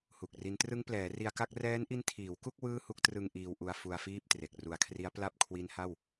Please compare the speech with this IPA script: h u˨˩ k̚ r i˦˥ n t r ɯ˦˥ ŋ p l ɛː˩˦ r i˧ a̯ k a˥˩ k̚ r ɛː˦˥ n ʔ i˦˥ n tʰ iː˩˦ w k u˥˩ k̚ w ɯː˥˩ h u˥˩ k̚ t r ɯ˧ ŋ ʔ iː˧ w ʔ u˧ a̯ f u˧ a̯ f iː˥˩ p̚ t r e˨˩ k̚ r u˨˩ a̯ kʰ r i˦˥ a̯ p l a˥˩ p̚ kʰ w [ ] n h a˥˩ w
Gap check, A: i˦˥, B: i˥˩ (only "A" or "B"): A